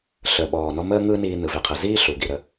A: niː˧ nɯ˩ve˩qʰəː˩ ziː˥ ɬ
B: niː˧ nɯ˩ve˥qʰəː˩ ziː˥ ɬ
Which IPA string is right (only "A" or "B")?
A